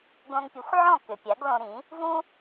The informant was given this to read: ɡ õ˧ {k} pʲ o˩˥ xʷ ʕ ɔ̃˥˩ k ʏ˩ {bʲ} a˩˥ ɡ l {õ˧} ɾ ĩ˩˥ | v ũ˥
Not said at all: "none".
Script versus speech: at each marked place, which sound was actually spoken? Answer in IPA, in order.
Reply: ŋ, pʲ, õ˧

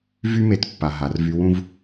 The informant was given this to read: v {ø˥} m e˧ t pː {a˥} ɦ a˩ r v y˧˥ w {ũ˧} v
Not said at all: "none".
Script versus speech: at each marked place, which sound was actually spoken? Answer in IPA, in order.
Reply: y˥, a˩, ũ˥

